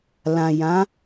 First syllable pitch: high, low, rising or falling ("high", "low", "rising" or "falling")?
low